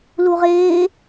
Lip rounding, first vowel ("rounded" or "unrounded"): rounded